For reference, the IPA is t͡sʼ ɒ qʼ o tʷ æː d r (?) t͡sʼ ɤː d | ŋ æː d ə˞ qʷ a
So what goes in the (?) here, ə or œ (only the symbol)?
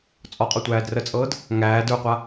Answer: ə